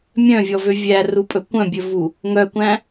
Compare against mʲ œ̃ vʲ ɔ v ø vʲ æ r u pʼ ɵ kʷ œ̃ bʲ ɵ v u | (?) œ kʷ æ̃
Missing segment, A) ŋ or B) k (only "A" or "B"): A